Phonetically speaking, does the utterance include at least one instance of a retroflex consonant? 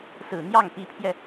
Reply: no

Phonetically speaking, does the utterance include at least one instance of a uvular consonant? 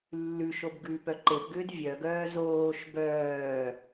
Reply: no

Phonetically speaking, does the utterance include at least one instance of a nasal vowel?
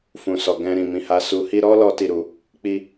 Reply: yes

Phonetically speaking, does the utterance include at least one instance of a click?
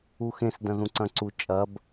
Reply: yes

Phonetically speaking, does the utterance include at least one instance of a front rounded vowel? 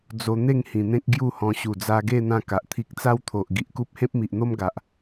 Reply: no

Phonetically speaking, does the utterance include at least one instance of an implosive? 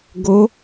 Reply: no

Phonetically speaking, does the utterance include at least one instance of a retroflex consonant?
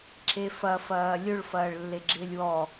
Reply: yes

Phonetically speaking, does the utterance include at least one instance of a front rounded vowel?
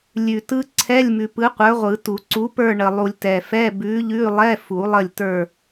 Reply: no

